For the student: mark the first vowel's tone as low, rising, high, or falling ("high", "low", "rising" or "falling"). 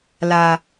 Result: low